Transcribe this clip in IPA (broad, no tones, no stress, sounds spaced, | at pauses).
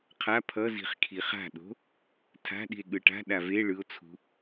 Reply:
qʰ a pʰ ʌ z i̤ χ kʰ i χ a̤ ɗ o̤ | tʰ a̤ ɗ i̤ e̯ ɠ ɯ ʈ a̤ ɗ a v e ɭ ɯ o̯ t͡sʰ ṳ